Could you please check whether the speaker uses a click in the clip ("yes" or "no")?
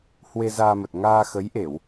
no